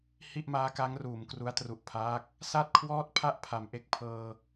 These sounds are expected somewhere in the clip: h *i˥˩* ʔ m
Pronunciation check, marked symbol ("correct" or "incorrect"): correct